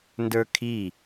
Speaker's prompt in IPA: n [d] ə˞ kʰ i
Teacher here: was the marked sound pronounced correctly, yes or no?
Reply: yes